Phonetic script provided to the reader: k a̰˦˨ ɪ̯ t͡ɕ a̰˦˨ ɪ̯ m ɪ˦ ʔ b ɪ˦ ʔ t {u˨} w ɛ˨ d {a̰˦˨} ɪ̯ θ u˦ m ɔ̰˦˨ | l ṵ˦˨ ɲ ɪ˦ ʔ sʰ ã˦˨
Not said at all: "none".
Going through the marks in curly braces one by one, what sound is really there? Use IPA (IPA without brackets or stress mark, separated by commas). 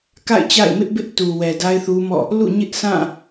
u˨, a˦